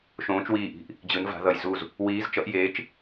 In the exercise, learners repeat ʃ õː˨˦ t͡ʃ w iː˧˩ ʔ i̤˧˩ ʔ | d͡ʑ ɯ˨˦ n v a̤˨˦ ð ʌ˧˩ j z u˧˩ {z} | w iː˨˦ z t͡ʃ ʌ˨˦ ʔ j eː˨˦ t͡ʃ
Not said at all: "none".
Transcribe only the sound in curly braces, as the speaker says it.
z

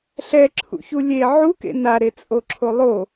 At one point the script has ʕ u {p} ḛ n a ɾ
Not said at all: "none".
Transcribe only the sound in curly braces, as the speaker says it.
k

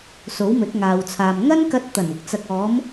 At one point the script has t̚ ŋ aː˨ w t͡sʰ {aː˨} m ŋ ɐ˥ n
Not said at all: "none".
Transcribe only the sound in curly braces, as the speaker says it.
aː˨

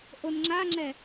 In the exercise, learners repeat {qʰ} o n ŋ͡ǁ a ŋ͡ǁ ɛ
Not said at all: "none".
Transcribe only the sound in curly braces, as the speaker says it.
ʔ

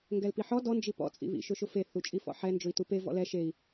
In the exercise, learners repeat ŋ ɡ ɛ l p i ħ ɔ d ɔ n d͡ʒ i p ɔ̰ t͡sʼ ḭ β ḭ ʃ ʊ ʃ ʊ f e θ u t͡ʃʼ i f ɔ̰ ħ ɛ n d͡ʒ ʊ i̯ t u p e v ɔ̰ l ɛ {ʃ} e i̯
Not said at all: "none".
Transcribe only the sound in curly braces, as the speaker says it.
ʃ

